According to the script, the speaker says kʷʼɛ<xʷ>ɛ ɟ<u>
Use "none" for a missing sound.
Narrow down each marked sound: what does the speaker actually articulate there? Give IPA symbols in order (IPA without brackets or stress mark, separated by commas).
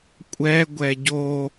ɡʷ, o